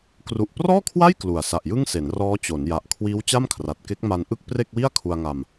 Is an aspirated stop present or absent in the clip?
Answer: present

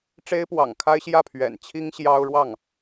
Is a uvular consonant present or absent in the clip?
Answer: absent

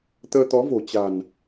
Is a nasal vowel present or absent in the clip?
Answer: absent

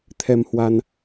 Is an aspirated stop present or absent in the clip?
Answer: present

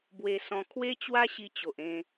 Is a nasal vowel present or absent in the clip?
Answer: present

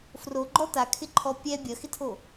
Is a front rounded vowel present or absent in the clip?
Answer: absent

